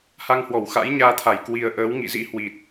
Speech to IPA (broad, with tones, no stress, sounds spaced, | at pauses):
h a˧ ŋ h w ɔ˧˩ w x a̰˧˥ j ɲ aː˧ t̪ʰ a˧˩ j k w i˨˩ ə̯ ʔ əː˨˦ w ŋ ḭ˧˨ z ḭ˧˥ h w i˨˩ t̚